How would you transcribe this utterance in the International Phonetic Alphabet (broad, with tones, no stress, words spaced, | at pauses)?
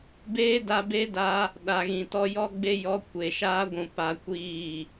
beː˦da˧be˦ da˦ | ɗa˨ɣĩ˨tɔ˦ jɔ˦ɡ͡be˦jɔ˧ kʷe˨ʃaː˦ɡʷũ˨ pa˧kʷiː˦˨